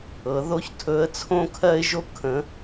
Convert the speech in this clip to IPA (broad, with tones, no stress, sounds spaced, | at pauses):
ɤ˩˧ ð o˧˥ ç tʰ ɵ˧˥ ə̯ t͡sʰ õ˥ kʰ ɜ˥ ɪ̯ ʒ o˥ kʰ ə̃˧˥